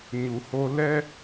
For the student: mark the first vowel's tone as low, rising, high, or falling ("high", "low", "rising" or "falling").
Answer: low